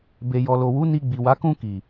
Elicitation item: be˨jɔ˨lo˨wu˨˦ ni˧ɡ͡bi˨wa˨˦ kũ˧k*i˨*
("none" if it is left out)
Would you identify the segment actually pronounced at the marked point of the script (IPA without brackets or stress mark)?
i˨